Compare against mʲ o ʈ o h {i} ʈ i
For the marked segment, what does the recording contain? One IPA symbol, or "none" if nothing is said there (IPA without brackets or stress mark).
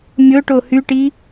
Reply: y